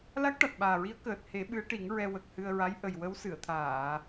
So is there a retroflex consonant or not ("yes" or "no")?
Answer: yes